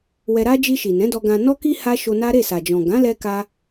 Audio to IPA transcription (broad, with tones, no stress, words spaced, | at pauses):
wɛ˧ɾa˦ d͡ʒi˧ʃi˨ nɛ̃˨˦dɔ˧ɡã˧ nɔ˦ki˦ ha˦ʃo˧na˦ ɾe˦˨sa˨d͡ʒɔ̃˨ ɡã˨˦lɛ˧ka˧